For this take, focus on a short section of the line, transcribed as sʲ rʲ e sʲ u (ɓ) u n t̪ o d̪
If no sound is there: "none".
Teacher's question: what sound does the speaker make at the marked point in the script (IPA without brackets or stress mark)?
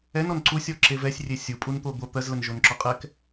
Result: pʼ